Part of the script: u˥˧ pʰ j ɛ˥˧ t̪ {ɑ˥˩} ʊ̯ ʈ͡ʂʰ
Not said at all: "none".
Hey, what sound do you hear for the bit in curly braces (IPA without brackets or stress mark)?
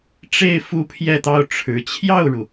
ɑ˥˩